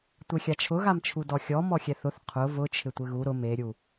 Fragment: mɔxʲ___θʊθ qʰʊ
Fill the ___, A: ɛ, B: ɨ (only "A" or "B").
A